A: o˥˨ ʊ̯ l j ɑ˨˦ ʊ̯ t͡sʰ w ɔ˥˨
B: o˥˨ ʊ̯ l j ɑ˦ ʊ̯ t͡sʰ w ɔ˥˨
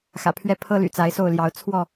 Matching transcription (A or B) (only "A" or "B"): A